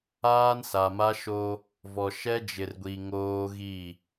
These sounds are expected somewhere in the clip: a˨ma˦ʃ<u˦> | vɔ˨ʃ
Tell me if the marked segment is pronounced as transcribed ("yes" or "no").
no